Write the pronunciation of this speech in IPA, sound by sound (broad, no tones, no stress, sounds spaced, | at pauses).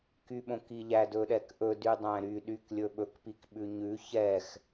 k y ɓ õ k i ʎ æ d ɵ ɗ ɛ k ʔ ɵ d y dˤ æ̃ ɾ y ɗ y k lʲ ɵ ɓ ɵ k p i k ɓ ʉ ɲ ʉ ç ɛ x